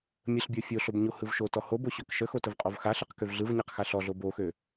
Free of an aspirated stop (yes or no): yes